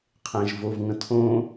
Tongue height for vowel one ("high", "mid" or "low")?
mid